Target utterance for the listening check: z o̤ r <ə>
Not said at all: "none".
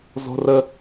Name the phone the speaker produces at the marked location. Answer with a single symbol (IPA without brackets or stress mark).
ə